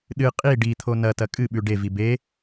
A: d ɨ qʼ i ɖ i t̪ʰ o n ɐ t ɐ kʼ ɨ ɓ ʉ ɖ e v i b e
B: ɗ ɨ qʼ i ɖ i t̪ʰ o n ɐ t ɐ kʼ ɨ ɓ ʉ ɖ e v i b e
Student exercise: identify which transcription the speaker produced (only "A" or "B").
B